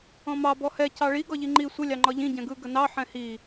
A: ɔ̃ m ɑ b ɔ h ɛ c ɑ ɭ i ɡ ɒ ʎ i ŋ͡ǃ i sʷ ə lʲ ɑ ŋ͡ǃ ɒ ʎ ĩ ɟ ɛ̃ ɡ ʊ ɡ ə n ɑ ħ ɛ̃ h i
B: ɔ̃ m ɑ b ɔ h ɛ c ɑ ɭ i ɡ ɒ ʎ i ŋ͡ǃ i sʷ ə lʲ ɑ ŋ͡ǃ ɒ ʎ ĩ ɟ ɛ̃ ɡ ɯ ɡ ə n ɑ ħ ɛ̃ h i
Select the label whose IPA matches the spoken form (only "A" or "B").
B